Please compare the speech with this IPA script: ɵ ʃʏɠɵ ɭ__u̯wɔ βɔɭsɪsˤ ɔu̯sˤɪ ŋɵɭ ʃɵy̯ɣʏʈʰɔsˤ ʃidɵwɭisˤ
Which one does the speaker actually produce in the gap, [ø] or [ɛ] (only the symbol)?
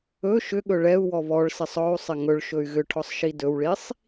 ɛ